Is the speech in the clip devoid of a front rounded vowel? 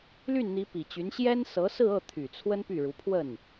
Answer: no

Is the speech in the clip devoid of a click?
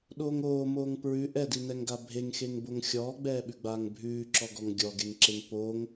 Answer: no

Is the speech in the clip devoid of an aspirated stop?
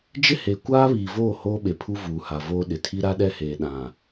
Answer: no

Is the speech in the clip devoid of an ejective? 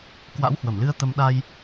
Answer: yes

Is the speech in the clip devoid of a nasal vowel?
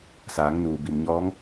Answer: yes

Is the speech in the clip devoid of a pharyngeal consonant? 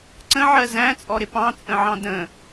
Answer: no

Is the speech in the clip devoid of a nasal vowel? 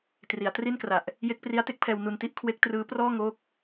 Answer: yes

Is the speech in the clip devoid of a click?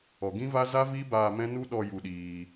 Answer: yes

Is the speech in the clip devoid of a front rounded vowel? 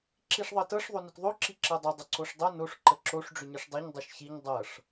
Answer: no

